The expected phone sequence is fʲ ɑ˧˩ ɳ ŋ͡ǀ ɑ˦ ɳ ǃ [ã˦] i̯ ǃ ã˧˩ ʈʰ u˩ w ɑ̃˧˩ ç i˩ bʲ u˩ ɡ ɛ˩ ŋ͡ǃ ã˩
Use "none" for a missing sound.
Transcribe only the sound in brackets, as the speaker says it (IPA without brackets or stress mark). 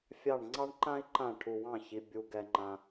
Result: ã˦